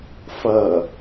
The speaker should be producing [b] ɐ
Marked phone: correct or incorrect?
incorrect